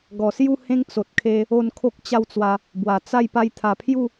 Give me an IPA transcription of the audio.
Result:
ɡɔ˨˩sju˥˧hẽ˦ŋ t͡so˨t̚kʰe˧ | o˥˧nkʰo˦k̚t͡ɕa˥˧wt͡swa˧ | bwa˨˩t͡sa˥˧j pa˧jt̪ʰa˨˩pʰju˥˧

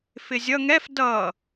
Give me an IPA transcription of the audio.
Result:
fɪzʲʌ ŋɛf dʌ

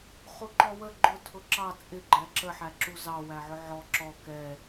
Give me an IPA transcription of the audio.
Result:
χuǃɔwə ɡ͡ǃʊ tʰʊǁɑ t͡sʼɪ ɡ͡ǃæǁə ħæǁuzɑ wæʕʊʕɔ ǁɔ kɛ

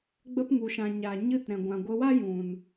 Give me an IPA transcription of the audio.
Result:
ɡ͡bə˧pŋu˨ʃã˨ ɲa˨ ɲɨ˧t ɾɛ̃˨ ɡʷã˨ɡʷə˧wa˦ jũ˨n

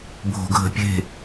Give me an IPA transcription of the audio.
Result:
bʱo̤ɡʱə̤pʲe̤

